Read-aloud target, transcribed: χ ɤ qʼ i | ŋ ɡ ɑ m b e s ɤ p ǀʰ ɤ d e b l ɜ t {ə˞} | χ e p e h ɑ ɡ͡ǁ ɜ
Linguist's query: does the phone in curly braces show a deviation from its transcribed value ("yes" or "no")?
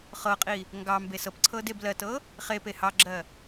yes